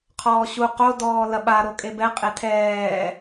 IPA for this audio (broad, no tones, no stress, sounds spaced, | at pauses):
qʰ ɔː ɕ u q o d ɔː l ɐ ɓ a ɾ o kʼ e b ɛ qʼ e tʰ ɛː